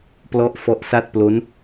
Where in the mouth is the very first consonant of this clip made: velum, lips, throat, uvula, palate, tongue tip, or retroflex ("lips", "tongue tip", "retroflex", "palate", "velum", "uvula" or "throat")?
lips